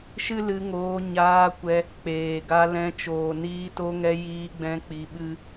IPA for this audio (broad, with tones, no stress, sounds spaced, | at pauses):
ʃ ɨ˦ l ɨ˧ ŋ oː˧ ɲ aː˧ kʷ ɛ˧ | k͡p eː˨ ɡ a˧ l ɛ̃˧ t͡ʃ oː˨ n iː˧ t o˧ ŋ ɛ˧ j iː˧ ɡ͡b ɛ̃˧ k͡p i˧ ɓ ɨ˦